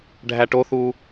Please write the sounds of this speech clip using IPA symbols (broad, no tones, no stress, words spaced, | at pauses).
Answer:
ɖʱæʈoθuː